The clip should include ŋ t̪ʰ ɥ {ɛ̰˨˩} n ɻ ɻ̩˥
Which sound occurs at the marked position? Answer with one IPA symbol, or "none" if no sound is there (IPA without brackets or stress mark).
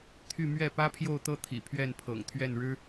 ɛ˥˩